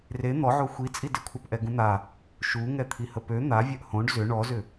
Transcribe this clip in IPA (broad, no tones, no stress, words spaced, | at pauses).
re n̪ɔʕo xʷit͡sʼi dɪkʷʰapʔɛ ɡũn̪a | ʃuŋɛt̪ʰi həpø n̪avʲœʔ hõɖ zʏ ɳɔzʏ